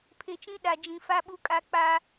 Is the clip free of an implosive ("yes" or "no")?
no